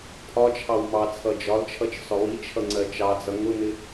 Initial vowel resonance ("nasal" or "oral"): oral